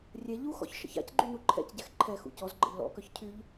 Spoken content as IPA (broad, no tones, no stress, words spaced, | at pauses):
rʲɛ ʎuxɔ̰ç ʃə̰ça̰cɡ͡ǃy nuǃʰɛ̰cɟɛx ǃʰɛ xṵcɔzɡ͡ǃə̰ʎ lɔ̰kœç cʰyʎ